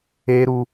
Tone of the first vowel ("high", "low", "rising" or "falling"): high